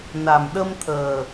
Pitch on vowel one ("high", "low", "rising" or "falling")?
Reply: low